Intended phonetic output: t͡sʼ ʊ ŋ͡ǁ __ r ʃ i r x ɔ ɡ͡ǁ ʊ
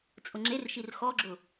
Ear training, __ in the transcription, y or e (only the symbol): e